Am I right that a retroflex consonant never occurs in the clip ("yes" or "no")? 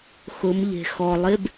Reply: yes